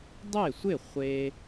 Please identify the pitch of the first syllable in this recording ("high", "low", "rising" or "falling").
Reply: falling